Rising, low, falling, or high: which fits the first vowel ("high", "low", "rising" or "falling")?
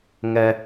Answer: low